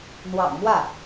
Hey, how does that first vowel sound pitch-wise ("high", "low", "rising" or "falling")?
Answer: low